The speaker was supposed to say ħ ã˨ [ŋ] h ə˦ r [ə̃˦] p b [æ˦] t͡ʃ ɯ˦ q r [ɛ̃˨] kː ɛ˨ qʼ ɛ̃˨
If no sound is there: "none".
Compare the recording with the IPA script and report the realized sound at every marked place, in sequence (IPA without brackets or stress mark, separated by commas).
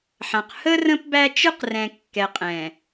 q, ə̃˦, æ˦, ɛ̃˨